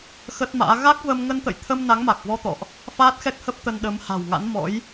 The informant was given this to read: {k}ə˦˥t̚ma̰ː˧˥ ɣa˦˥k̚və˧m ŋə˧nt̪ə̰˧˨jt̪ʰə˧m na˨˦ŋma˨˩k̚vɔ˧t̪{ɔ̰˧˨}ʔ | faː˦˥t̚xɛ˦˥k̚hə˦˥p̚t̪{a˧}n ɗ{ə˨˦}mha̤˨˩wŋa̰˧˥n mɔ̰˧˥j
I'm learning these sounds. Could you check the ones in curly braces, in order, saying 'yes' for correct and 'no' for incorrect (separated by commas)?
no, yes, no, yes